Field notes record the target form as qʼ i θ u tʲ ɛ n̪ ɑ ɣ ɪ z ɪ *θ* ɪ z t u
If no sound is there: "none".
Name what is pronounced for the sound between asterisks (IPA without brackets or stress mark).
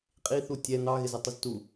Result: tˤ